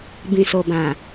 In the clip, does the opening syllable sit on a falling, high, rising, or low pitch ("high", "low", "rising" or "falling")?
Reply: low